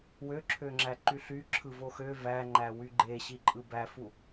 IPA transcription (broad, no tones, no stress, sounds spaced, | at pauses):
w ø ǁʰ ø ŋ͡ǁ æ ǃ y ɬ y ǁʰ ɯ v o x ø v æ ŋ͡ǃ æ w y ɡ͡ǃ e ɕ i ǃʼ ɯ b æ f u